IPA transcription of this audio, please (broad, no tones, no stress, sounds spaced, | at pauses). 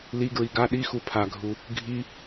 l i ɡ ɹ i ɡ a ɗ i x u pʰ a ɡʱ u | ɡʱ i